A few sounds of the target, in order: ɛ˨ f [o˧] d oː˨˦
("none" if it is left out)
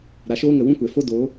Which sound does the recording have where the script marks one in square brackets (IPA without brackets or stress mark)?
o˧